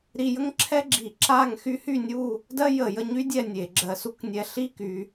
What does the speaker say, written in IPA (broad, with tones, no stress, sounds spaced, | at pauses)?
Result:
ɾ i˧ j ə˥ ŋ ǁʰ ɛ˥ ɡ͡ǁ i˧˩˧ ǁ a˥˧ ŋ x y˥ h y˥˧ nʲ u˥˧ | d ɜ˥ j ə˧˩˧ j ə˧ ɲ y˥ dʲ ɛ˥˧ nʲ e˧˩˧ ɡ͡ǁ ɜ˧ s u˥ k nʲ ɛ˧ ɬ i˥˧ k y˧